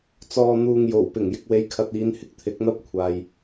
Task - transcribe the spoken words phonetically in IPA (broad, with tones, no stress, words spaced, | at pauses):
t͡sɔː˨n̪uː˨ŋ jo˨˩wpɪ˨˩ŋ jɪ˨k̚we˨˧jkʰɐ˨t̚ iː˨˧nhɪ˧k̚ t̪ʰɪ˨˥k̚n̪ɐ˥p̚kʷʰaː˨j